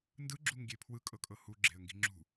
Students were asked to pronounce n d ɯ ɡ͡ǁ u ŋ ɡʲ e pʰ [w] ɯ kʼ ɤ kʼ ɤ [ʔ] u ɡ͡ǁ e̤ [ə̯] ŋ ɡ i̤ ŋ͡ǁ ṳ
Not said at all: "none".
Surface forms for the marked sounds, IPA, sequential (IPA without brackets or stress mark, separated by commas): w, h, ə̯